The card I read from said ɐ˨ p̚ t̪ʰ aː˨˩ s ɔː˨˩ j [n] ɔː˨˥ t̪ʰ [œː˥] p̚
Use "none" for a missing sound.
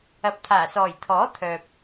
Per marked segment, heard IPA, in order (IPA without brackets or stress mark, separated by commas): t̪ʰ, œː˨